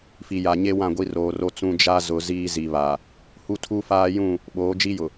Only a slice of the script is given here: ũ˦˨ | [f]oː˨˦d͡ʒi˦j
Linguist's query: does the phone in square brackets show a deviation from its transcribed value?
yes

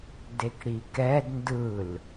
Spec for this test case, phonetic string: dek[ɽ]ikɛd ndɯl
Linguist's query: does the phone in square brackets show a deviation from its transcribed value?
no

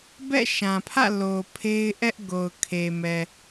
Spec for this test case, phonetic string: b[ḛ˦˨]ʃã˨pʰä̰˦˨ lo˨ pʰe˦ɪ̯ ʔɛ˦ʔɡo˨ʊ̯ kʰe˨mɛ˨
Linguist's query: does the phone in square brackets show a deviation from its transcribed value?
yes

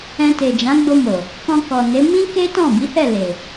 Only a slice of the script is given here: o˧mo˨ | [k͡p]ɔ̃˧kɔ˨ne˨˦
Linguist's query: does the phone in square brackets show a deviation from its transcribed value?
yes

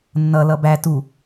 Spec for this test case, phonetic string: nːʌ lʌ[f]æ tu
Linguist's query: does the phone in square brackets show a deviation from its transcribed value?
yes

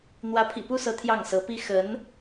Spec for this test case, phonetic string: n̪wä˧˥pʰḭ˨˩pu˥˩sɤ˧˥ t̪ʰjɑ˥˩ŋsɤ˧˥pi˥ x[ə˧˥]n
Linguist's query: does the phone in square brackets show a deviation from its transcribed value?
no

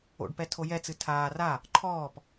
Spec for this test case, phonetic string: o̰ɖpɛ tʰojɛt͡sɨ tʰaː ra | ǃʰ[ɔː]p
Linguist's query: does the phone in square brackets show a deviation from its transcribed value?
no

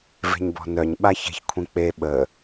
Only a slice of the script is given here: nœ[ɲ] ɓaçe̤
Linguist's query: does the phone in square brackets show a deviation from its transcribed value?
no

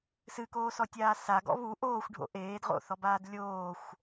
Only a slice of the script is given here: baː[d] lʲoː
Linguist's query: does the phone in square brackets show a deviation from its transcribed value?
no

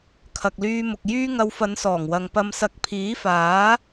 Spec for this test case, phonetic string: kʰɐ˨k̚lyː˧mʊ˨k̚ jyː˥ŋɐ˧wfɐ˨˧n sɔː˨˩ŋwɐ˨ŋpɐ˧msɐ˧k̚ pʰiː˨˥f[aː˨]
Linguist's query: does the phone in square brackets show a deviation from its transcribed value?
yes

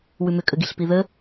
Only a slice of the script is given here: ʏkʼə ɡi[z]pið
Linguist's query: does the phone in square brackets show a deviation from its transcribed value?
yes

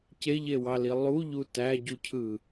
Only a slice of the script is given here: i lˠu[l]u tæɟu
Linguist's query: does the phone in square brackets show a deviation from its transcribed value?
yes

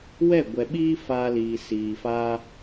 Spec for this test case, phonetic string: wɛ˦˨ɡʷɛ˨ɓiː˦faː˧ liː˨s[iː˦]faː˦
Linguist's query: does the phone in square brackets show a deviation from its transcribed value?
yes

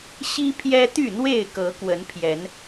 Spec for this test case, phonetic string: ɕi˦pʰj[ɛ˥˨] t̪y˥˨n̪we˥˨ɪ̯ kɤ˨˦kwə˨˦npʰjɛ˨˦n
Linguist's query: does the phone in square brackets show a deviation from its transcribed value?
yes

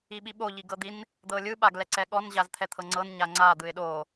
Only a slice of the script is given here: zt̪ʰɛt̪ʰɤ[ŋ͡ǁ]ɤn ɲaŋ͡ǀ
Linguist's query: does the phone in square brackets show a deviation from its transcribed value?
yes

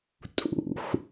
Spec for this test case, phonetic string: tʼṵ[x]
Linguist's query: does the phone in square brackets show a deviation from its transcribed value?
no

